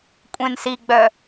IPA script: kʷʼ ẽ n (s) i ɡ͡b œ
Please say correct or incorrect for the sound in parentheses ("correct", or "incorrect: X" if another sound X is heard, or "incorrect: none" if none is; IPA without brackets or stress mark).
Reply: correct